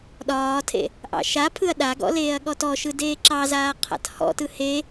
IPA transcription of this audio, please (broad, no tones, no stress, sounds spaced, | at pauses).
ɗ ɒː tʰ ḛ | ʔ ɑ̰ ʃ a pʰ ɯ ɐ̯ ɗ a ɡ ɔ̰ l eː ɐ̯ ɠ ɔ t ɔ ʃ ɯ d eː ǁ ɑ z aː qʰ a̰ t h ɔ̰ t ɯ h e